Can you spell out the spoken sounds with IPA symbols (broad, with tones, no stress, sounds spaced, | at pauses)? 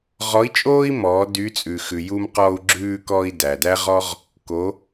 ʁ ɔ˧˥ i̯ t͡ʃʼ oː˥ i̯ m ɔː˩˧ d y˧˥ t͡sʼ ʉ˩ x ʉ˩ j u˧ m q ɔ˧ u̯ ɡ͡ǁ ʉː˧ k ɔ˧ i̯ d æ˩ d æ˥ ʁ ɔ˥ ʁ | k o˩˧